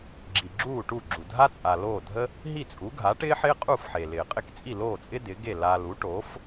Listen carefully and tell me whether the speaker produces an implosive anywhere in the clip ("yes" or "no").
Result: no